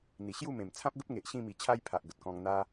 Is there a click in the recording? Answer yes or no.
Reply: no